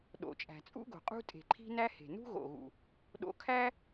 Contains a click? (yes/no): yes